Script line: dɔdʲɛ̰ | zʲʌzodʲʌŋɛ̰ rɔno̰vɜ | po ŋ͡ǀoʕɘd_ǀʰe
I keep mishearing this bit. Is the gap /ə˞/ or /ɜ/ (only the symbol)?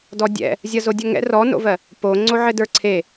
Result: ə˞